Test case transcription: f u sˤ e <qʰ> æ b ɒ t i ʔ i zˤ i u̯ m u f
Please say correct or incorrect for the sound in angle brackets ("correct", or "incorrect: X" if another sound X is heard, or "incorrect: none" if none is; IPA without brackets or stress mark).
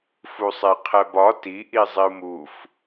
correct